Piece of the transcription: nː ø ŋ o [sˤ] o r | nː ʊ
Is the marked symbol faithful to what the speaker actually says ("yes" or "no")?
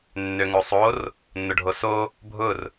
yes